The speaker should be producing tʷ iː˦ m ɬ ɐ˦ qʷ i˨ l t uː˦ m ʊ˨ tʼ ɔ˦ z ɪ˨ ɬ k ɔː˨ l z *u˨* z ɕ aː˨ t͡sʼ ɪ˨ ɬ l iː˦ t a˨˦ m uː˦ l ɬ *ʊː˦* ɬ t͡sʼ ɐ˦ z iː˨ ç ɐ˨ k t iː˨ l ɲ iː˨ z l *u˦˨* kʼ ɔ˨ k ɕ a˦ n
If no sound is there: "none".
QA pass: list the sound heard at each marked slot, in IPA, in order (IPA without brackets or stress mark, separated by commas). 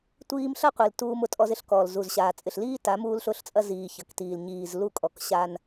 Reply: u˨, ʊː˦, u˦˨